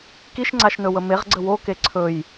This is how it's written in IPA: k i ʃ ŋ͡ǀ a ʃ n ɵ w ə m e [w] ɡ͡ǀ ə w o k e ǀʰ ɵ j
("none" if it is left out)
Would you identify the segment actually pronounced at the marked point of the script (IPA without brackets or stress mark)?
ʁ